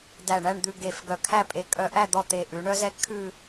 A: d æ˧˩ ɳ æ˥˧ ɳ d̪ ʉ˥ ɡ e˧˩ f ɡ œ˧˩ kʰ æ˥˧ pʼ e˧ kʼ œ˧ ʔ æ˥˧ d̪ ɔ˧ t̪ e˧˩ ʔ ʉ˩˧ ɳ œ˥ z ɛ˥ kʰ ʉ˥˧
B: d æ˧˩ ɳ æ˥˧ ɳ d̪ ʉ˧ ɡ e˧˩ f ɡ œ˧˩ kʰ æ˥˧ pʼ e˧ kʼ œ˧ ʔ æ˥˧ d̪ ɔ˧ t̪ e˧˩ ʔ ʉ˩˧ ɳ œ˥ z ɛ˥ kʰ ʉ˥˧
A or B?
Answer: B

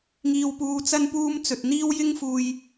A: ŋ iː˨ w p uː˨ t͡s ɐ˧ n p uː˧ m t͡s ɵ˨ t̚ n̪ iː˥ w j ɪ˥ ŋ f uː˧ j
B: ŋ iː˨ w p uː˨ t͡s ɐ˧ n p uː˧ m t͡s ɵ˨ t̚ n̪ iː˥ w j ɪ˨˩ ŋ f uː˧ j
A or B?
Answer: A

